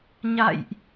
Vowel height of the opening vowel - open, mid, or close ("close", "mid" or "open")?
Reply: open